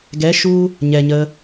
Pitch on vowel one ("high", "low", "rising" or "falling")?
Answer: rising